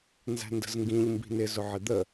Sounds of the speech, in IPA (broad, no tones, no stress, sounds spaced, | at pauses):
n z æ̤ n d ə̤ z ŋ ɡ ĩ ʎ m b i̤ n ɪ z ʊ ʕ ɪ d̪ ə